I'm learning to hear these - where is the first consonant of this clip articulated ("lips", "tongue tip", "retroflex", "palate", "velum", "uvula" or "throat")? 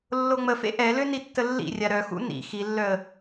tongue tip